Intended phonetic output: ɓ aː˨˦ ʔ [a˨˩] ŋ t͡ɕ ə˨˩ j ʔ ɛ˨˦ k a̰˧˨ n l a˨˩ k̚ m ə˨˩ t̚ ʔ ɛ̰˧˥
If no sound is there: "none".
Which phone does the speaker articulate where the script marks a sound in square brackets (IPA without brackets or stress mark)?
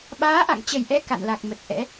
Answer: a̰˧˨